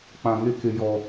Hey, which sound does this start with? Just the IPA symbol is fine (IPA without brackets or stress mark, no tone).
k͡p